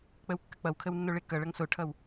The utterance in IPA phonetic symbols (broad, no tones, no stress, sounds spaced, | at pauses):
k͡p ə w kː ə k͡p ʌ w kʰ ə w nː o ɭ e k ʌ ɭ ʌ ŋ s o ʈʰ ʌ w